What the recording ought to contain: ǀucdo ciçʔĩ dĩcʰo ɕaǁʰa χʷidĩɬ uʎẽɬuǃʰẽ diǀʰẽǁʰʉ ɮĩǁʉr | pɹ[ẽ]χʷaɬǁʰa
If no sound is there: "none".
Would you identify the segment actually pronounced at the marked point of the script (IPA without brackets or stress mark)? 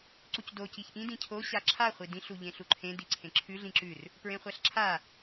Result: ẽ